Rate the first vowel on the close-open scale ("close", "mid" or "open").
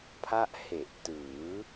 open